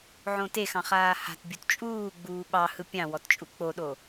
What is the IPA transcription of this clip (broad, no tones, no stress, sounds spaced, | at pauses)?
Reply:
ʕ õ t e x ɑ̃ χ aː h a̤ t bʲ u t t͡ʃʼ uː ɡ͡b uː ɓ ɑ h ɯ pʲ ɑ̃ w ɔ t t͡ʃʼ u k͡p o ɗ o